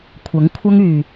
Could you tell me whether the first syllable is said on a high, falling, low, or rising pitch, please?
rising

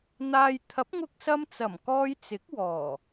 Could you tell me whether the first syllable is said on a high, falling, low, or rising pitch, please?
low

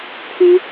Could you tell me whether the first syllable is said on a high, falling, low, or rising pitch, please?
high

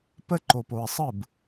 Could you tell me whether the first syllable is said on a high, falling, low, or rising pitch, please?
high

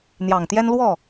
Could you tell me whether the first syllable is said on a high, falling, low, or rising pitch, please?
low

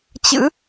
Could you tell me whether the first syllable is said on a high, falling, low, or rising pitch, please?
rising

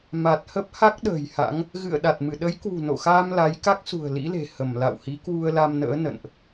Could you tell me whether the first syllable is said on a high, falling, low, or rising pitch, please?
low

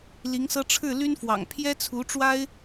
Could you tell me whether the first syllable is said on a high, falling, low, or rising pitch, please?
rising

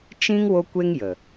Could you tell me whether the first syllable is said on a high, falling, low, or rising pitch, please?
high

